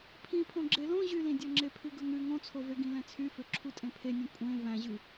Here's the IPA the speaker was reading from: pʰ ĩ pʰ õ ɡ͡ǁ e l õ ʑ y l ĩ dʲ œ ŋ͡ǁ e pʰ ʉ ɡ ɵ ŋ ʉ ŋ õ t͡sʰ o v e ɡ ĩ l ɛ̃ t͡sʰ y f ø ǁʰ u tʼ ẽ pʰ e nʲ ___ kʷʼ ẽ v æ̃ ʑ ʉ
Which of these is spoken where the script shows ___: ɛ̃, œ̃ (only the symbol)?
œ̃